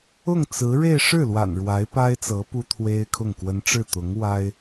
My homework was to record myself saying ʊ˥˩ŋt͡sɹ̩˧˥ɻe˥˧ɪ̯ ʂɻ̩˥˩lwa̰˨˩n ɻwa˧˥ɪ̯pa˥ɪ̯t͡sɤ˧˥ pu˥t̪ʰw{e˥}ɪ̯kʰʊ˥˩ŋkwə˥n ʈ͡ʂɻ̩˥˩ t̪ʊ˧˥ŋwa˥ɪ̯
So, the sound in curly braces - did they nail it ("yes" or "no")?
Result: yes